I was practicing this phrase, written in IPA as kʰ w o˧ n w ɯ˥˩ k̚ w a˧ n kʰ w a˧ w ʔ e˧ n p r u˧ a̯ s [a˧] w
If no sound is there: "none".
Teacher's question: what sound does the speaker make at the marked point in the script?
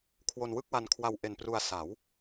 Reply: a˩˦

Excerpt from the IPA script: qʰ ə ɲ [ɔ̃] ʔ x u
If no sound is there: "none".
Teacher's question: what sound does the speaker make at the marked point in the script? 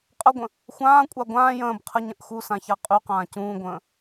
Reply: ə̃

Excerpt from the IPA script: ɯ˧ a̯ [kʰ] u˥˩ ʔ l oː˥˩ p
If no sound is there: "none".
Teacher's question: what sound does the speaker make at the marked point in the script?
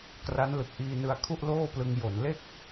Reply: kʰ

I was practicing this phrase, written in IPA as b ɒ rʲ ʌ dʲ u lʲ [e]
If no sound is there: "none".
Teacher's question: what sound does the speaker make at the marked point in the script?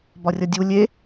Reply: e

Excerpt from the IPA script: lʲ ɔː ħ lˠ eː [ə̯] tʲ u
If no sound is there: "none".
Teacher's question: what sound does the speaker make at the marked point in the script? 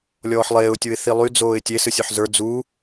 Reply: ʊ̯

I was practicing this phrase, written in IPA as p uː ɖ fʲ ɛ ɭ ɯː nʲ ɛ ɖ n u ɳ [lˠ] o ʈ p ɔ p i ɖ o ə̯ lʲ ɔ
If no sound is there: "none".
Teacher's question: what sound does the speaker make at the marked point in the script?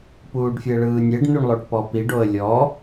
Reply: lˠ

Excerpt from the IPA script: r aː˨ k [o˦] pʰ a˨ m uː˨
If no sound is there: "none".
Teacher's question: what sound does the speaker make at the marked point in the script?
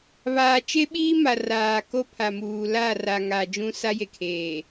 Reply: o˦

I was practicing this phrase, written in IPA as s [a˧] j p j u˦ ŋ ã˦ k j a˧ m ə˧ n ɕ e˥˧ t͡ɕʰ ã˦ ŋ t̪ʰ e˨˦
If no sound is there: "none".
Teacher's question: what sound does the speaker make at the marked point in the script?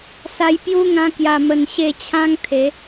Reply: a˧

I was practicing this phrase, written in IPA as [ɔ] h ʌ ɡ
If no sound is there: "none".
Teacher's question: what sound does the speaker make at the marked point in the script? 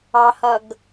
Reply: ɑ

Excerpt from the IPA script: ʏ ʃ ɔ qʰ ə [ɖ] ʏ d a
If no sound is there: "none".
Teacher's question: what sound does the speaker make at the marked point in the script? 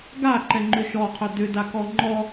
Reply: d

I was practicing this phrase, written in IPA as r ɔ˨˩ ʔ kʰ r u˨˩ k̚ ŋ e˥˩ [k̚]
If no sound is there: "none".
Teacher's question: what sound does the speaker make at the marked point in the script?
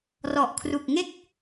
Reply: k̚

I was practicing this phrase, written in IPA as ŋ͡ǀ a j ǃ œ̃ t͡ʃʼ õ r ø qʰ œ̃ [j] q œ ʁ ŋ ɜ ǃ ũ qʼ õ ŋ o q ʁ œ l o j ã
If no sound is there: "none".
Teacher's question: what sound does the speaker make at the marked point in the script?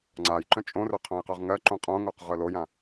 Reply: j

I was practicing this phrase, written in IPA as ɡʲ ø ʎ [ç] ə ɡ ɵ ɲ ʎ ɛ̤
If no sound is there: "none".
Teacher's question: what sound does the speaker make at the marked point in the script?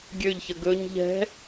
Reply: ç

